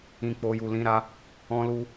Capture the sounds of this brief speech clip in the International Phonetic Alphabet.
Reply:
ĩ˨ k͡p o˨ j u˨ l ĩ˨˦ ɾ a˧ | ɔ̃˧ l u˧

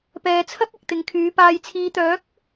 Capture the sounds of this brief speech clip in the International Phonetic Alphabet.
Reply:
p ɛː˨ t͡sʰ ɐ˥ p̚ ɪ˨ k̚ t̪ ɪ˨ ŋ kʰ yː˨˧ p aː˨ j t͡sʰ iː˨ t̪ œː˨˥ k̚

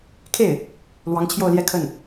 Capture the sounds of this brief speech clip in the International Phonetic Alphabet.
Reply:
kʰ e˥˩ ɪ̯ | l w ɑ˧˥ ŋ t͡ɕʰ j o˥˧ ʊ̯ l j ɛ˥˧ kʰ ə˥˩ n

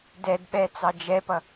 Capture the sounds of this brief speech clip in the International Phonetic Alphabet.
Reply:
d ɛ d ɓ ɛ t͡s ɑ d͡ʒ ɛ p ʌ

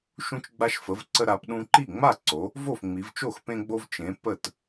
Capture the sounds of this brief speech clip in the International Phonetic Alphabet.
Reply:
ʃ ũ˧ t͡ʃ ɡ͡b a˧ ʃ f ə˩˧ v ǀ ə˧ ɾ a˩˧ p ɗ ũ˧ ǃ i˥˩ ŋ͡m a˥˩ ǀ o˩˧ | v o˥˩ f ŋ͡m i˩˧ v t͡ʃ o˥˩ x p ẽ˧ ɡ͡b o˧ v t͡ʃ ẽ˩˧ p ə˥˩ t

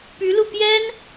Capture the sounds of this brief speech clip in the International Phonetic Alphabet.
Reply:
p y˧˥ l u˥˩ p j ɛ˥ n

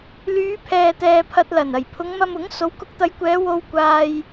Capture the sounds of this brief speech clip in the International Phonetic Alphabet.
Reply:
l yː˨˧ pʰ ɛː˨ t̪ ɛː˨ pʰ ɐ˧ t̚ l ɐ˨˩ n ɐ˨˩ j pʰ ʊ˨˧ ŋ m ɐ˧ m ʊ˨˥ ŋ s o˨˥ w k ʊ˨˥ k̚ t̪ ɐ˨˧ j kʷ ɛː˨˧ w o˧ w kʷ aː˧ j

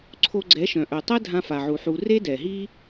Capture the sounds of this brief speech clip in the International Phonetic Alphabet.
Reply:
ǀʰ o˧ ɡ͡ǀ ɛ˨˦ ʃ œ̃˨ ʔ œ˨ tˤ ɛ˦ dʱ ã˧ f a˨ ʕ u˨ ħ u˧ r e˦ d ɛ˨ ɦ i˦

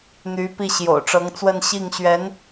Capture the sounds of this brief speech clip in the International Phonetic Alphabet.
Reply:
n̪ y˧˥ p i˥˩ ɕ j o̰˨˩ ʊ̯ ʈ͡ʂ ɤ˧˥ ŋ t͡s w ə˥˧ n ɕ i˥˩ ŋ ɕ ɥ ɛ˧˥ n

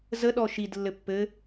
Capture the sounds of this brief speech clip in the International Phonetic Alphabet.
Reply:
z ə ɗ ɔ ʃ i d lː ɘ pː ɘ

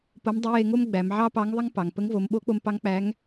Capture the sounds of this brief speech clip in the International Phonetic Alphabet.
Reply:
p o˧˥ m dˤ ɪ˧˥ j e˧ ŋ o˥ m ɡ͡b æ˩˧ m ʕ ɑ˥ p ɑ˧˥ ŋ ðˤ ɪ˥ ŋ p ɑ˩ ŋ p ə˧˥ ŋ v o˩˧ m ɓ o˧˥ k͡p o˧ m p ɑ˧˥ ŋ k͡p æ˧˥ ŋ

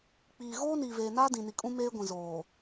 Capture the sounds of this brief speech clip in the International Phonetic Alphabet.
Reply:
k͡p iː˨ ɣ oː˦ n iː˨ v eː˨ n aː˦ d ĩ˨ n i˨ kʼ ũ˦ m eː˦ ɡʷ ĩ˨ z oː˨

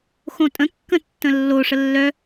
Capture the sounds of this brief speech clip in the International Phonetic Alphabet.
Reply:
x õ tʼ ə̃ kː ə̃ tː ə̃ lː o ʂ ə lː œ

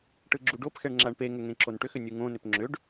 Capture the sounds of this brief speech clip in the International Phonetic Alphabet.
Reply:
ʈ ɯ ɡ͡ǁ u ɖ o p x ɛ ɳ ŋ͡ǁ a ɳ p e ŋ ʏ ŋ ẽ ǁ o n ʈ ʏ x ʏ nʲ u ŋ õ n ʏ p ŋ͡ǁ ʏ ɖ

